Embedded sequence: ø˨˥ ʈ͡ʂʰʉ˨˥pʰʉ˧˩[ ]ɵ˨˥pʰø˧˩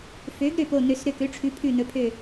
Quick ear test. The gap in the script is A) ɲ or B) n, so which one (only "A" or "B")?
B